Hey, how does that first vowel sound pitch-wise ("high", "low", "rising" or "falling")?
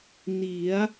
rising